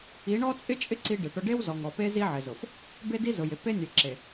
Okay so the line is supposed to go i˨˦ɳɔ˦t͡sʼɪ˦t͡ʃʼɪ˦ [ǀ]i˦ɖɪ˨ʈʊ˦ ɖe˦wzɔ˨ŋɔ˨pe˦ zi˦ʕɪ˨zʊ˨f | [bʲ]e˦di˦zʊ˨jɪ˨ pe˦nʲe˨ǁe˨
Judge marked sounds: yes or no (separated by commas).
yes, no